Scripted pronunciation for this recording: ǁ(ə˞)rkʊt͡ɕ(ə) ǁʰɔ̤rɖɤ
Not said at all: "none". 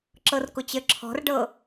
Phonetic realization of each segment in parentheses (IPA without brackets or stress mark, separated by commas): ɤ, ə